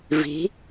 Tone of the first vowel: rising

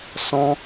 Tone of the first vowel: high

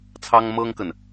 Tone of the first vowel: high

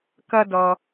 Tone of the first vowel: high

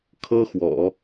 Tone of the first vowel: high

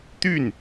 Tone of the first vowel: falling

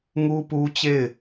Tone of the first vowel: high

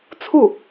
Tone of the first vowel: falling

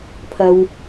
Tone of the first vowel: high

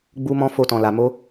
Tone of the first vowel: high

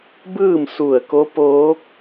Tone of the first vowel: falling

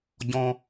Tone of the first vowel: high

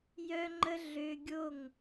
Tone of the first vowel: high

